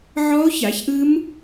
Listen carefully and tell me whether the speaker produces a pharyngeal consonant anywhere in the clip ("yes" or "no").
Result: yes